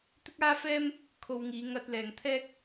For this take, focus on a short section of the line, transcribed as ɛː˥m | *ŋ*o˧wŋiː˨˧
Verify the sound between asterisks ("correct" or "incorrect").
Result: incorrect